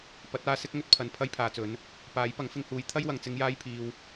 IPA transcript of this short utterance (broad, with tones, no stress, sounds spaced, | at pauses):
p ɐ˨˥ t̚ aː˧ s ɪ˥ k̚ ŋ ɵ˧ t̚ pʰ ɐ˨ n pʰ ɐ˥ j pʰ aː˨ t͡s ɵ˨˥ n | p aː˨˥ j p ɐ˨˥ ŋ f ɪ˧ ŋ h uː˨˧ j t̪ʰ ɐ˥ j w ɐ˨ ŋ t͡s ɪ˧ ŋ j aː˥ j pʰ iː˧ w